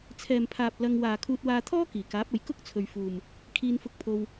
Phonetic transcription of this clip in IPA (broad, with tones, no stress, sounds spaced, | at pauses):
t͡sʰ ɛː˨ m pʰ aː˨ p̚ l ɐ˧ ŋ w aː˨ kʰ uː˧ t̚ w aː˧ t̪ʰ ɔː˥ k iː˨˩ k aː˨˥ p̚ ɐ˨ j k ʊ˥ k̚ t͡sʰ ɵ˨ ɥ f uː˨ m | kʰ iː˧ n f ʊ˧ k̚ pʰ o˥ w